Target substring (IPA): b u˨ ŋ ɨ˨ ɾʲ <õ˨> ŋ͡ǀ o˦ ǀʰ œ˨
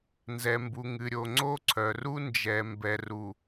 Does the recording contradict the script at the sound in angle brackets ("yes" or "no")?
yes